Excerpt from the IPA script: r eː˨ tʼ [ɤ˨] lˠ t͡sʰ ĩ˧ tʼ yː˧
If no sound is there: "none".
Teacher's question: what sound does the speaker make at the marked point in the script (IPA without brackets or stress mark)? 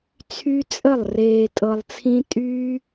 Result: ɤ˨